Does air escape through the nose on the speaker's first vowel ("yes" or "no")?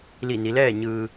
no